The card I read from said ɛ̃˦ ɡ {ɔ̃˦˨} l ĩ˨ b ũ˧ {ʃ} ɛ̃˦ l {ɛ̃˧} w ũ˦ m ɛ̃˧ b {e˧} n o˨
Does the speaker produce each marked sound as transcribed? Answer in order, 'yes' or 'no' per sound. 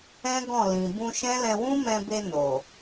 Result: yes, yes, yes, yes

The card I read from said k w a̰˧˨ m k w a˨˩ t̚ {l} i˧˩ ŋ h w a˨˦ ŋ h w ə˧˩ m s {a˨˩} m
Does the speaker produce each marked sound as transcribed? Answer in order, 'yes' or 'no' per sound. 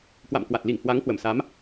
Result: yes, no

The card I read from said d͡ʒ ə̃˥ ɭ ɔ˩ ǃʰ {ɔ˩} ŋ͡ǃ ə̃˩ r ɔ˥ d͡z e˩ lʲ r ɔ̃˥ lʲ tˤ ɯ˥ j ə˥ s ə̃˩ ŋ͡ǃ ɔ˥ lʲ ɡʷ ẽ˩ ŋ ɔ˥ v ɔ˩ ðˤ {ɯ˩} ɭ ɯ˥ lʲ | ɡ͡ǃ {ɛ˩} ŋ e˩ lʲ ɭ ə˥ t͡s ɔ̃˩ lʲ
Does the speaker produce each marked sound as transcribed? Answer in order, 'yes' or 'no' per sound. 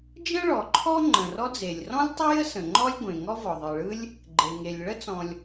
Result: no, yes, no

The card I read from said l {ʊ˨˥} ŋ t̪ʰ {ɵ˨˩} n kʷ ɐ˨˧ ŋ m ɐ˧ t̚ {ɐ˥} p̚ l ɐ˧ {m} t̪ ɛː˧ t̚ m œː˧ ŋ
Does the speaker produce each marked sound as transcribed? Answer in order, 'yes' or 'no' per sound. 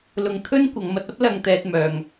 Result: no, no, yes, no

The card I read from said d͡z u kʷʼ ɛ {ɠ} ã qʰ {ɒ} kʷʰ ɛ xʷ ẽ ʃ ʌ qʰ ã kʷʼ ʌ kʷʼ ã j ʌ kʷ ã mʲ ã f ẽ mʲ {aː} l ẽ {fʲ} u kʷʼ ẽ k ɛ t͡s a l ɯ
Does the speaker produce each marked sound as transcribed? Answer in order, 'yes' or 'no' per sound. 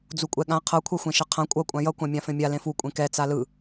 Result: yes, no, no, no

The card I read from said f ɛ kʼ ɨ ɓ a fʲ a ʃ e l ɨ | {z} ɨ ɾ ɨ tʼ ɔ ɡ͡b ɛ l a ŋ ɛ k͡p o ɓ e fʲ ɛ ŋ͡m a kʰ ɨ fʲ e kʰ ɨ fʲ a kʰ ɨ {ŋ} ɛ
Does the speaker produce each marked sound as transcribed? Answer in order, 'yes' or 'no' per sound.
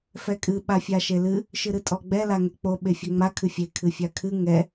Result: no, yes

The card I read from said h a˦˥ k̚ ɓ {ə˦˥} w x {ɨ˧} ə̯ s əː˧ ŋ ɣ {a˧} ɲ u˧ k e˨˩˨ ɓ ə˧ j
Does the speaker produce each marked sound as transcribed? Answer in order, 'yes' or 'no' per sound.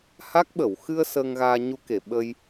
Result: no, yes, no

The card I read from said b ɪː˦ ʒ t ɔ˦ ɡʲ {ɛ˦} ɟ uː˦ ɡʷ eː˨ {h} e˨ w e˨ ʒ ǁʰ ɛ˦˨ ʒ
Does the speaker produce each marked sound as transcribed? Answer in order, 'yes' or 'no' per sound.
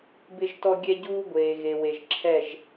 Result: yes, no

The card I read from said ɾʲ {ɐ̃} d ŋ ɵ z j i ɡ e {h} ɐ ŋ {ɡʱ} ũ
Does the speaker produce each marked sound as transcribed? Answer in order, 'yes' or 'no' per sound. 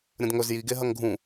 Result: yes, no, yes

